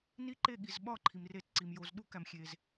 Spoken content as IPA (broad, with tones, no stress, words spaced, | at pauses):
ni˧ǃe˧˩ɠi˩zɓɒ˧˩ ǃʰi˩mre˨˩˦tǀi˩m jo˩z ɗu˨˩˦kæ˩mxʲe˩z